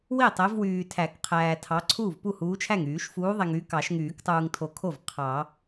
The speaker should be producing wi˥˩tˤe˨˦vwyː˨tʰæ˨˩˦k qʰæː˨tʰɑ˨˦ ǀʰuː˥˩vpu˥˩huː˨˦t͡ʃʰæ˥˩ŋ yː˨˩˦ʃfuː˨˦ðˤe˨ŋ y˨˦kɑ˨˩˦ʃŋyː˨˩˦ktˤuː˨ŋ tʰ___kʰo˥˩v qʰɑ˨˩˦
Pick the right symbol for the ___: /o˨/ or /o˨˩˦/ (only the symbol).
o˨